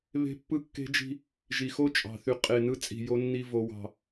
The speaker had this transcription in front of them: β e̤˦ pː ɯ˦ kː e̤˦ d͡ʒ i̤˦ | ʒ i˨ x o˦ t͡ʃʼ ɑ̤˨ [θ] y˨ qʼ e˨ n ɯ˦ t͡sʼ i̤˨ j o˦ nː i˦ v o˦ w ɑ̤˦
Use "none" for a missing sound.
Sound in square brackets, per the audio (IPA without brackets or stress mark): θ